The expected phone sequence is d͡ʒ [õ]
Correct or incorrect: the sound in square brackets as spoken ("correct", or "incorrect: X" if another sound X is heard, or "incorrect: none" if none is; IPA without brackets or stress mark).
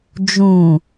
incorrect: ũ